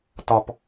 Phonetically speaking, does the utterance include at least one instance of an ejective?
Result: no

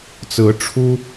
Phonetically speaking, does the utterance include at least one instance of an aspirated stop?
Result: yes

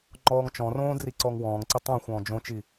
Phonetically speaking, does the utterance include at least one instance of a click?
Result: yes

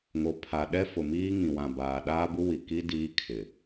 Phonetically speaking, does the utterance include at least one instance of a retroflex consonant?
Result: no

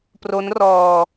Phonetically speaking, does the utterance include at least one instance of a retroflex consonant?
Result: no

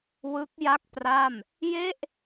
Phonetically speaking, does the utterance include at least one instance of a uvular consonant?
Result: no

